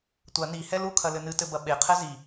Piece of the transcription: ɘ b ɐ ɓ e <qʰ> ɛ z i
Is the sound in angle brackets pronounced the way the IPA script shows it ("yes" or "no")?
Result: yes